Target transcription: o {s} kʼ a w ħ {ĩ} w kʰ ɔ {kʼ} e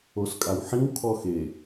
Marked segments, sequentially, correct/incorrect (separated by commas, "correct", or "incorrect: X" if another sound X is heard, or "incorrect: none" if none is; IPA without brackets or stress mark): correct, correct, incorrect: x